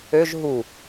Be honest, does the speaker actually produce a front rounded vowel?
yes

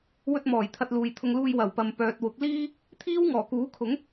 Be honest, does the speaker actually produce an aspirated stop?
yes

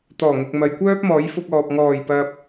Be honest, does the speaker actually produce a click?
no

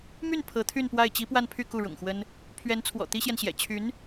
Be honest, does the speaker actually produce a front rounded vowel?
yes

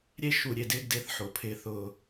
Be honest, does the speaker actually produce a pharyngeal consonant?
yes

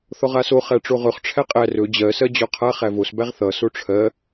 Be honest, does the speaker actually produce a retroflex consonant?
yes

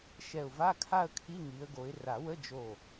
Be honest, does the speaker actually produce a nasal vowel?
no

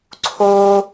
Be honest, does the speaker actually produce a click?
yes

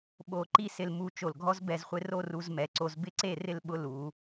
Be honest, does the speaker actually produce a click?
yes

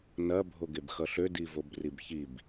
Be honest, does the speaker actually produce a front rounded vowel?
yes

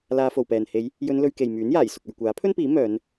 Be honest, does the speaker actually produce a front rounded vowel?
yes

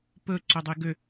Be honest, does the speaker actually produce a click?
yes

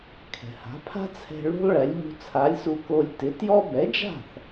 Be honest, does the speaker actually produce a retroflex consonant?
yes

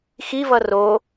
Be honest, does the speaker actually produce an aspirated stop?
no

